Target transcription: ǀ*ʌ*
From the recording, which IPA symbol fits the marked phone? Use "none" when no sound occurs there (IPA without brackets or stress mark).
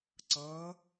ʌ